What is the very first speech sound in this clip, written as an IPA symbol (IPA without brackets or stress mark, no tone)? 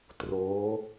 t